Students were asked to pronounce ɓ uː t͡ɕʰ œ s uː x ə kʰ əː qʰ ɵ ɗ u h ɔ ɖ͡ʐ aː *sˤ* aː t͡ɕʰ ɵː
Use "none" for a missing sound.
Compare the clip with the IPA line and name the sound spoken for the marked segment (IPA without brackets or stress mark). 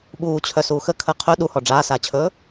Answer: s